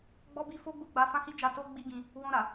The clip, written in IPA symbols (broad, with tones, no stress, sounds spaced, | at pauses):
ɡ͡b ɔ˦ b i˦ f o˦ ɡ͡b u˦˨ ɡ͡b a˧ f ã˦ h i˦ d͡ʒ a˧ t o˦ ɡ͡b i˦ ɡ ĩ˧ | w ɔ̃˧ ɾ a˨